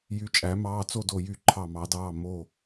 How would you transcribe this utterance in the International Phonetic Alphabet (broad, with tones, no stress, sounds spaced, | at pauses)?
j y˨˦ t͡ʃʼ æ˨˩˦ m ɑː˩˧˩ t͡s o˥˨ d o˧˩ j y˥˨ ǃʰ ɑ˧˩ m ɑ˨˩˦ d ɑː˩˧˩ m o˧˩